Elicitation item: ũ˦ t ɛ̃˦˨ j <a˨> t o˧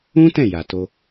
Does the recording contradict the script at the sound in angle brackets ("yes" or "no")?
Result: no